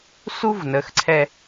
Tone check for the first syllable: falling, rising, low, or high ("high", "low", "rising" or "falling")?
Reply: high